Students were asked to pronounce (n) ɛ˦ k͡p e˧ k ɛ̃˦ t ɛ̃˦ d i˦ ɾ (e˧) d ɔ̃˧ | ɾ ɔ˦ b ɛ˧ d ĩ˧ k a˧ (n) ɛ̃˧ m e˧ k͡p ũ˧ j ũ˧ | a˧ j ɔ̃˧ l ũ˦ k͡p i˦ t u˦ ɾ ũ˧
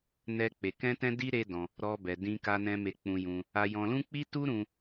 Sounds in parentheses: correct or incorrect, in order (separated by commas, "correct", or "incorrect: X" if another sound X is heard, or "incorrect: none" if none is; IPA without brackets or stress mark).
correct, incorrect: e˦, correct